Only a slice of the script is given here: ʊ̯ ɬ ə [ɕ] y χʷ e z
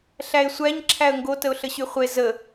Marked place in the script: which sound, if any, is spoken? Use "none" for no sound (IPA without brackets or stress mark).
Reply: ɕ